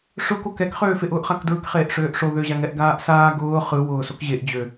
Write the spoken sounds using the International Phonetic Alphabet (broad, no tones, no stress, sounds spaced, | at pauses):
ʂ ʊ k o k ɛ k χ øː f e ʔ ʊː ʔ χ a k d ɹ ɯ k χ eː ʔ ʂ øː ʔ ʂ o ð ø ʑ a ŋ ɛ ʔ ɡ aː ʔ s aː ɡ ʊː χ ɯ w ʊː s o k ʑ e ʔ d͡ʑ ø